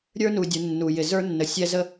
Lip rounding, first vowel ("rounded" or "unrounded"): unrounded